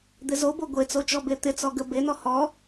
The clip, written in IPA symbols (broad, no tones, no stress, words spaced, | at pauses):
d̪ɪzobo ɡʷet͡sot͡ʃɔ bet̪ɪ t͡sɔɡə benɔ hɔ